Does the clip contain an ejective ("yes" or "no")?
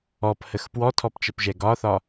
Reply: no